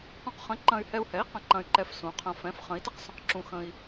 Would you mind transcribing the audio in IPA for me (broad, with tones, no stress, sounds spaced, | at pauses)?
q ũ˧ q χ ə̃˩˥ ǃ ɐ̃˧ y̯ h ɛ˧ u̯ h ɛ˩˥ i̯ q ɐ̃˩˧ ǃ ɐ̃˧ y̯ ǃ ɛ˧ f s ũ˩˧ qʰ ɐ̃˧ f ɛ̃˩˥ f χ ə̃˩˥ i̯ t ə˧ q s ə̃˧ q ǁ ũ˧ x ə̃˧ i̯